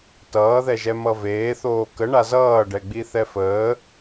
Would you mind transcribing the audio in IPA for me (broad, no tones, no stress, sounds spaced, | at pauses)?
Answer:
t ʌː ð ɛ ʒ ɛ m ʌ v eː θ oː k ə ɳ a z ʌː ɖ ɛ ɡ͡b i θ ɛ f əː